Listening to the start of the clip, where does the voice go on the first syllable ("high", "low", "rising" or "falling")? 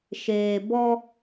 low